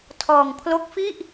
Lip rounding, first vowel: rounded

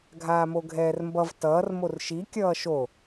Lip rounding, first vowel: unrounded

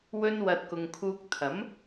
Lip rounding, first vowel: rounded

